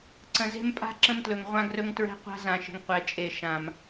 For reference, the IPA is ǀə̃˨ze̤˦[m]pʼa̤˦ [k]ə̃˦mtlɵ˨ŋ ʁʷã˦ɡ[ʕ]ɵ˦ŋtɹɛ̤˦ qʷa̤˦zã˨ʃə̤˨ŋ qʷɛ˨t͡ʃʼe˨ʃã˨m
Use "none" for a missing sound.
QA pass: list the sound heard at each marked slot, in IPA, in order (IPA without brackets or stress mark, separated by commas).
m, ǁ, r